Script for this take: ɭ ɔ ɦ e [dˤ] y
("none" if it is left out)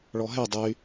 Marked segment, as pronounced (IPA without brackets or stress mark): dˤ